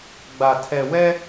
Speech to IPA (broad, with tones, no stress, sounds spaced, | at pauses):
ɡ͡b a˨ tʰ ɛ˨ w ɛ˦